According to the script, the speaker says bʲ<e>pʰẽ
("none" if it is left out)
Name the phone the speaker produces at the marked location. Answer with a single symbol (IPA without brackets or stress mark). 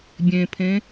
ẽ